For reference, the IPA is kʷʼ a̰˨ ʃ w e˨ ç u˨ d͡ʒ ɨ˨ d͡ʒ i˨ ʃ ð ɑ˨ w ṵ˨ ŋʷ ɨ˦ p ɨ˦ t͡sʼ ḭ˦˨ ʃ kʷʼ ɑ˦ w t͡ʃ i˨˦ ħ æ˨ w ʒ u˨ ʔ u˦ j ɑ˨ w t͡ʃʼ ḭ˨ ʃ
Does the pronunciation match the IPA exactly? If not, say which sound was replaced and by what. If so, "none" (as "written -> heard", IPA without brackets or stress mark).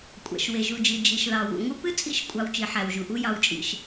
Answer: ç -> ʒ